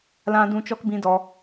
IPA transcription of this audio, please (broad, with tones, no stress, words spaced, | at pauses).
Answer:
lã˧ dũ˧t͡ʃɔ˧kbĩ˧dɔ˧